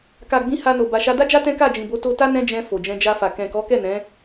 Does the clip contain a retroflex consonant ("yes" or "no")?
no